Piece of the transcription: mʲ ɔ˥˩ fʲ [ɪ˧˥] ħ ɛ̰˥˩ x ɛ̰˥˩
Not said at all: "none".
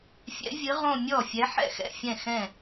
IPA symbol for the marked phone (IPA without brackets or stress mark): ɛ˧˥